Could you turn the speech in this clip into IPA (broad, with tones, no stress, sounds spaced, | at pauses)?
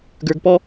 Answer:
ɡ ə˞˧ ɡ p ɔ˦